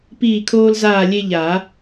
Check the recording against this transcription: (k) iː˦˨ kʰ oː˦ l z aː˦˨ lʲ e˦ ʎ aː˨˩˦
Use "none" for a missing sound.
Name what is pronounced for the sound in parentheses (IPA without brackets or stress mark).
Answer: p